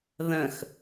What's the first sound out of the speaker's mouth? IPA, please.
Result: ð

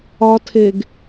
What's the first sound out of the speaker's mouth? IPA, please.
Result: ɒ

